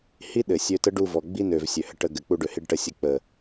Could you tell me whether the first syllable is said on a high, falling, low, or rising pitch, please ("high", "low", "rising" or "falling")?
high